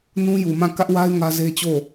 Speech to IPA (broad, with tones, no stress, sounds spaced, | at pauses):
n ũ˦ j u˨ m ã˦˨ k ä˦ ʔ w a˦ ɪ̯ ŋ ä˦ z e˦ t͡ɕ o˦˨